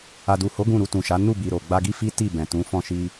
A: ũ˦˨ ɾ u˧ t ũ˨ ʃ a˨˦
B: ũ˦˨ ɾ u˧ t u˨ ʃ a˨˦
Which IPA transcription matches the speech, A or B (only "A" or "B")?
A